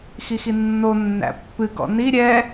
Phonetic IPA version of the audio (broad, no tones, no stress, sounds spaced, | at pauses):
x i x i nː o nː æ̰ pː ɨ ɡ ɔ̰ n i ɾʲ ɛ